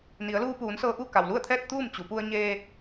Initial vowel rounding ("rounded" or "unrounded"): unrounded